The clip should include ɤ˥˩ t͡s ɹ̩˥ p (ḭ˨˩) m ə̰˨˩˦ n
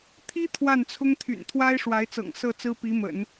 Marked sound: incorrect: i˧˥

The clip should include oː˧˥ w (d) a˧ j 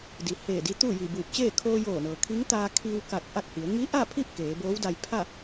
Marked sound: correct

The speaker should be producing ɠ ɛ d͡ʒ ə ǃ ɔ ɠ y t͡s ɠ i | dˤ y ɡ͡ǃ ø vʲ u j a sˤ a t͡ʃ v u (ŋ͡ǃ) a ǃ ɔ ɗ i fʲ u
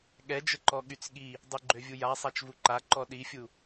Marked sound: incorrect: ǃ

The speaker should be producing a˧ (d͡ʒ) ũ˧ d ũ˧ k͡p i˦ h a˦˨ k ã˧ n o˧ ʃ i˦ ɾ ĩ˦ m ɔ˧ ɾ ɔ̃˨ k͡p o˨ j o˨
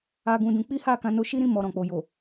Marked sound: incorrect: ɡ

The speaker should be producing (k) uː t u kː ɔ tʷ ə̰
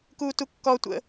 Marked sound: correct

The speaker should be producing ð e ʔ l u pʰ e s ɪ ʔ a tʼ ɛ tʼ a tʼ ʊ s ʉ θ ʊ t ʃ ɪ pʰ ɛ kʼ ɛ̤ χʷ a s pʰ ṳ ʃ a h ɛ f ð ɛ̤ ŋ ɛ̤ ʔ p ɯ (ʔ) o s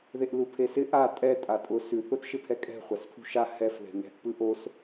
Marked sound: correct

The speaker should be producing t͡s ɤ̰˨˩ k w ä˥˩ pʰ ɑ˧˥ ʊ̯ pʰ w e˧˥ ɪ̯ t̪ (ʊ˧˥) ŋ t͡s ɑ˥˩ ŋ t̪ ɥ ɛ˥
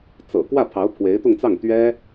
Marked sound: incorrect: ʊ˥˧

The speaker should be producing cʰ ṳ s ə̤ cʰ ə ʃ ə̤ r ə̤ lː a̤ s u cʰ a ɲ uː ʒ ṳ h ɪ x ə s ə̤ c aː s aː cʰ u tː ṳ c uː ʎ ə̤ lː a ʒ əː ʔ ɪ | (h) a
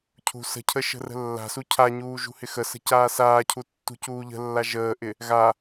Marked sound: incorrect: ɣ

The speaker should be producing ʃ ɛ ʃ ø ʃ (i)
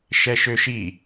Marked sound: correct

